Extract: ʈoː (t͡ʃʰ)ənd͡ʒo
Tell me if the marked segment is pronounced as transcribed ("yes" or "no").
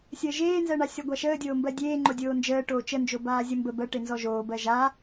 no